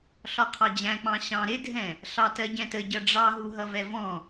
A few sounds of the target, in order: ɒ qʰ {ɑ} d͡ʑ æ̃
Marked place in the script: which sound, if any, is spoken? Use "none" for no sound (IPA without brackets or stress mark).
ɑ